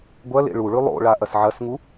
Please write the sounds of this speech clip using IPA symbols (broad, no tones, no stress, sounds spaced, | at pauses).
ɡʷ ɐ l ḛ ɭ u ɭ ʉ lˠ o̰ ɭ a ʔ ɐ s ʕ ɐ s ŋ u